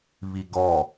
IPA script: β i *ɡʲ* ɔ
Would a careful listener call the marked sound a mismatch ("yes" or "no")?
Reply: yes